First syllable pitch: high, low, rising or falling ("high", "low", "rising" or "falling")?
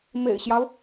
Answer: low